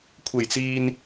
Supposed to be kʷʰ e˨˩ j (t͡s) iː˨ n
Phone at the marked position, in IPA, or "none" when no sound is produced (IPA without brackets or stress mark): t͡s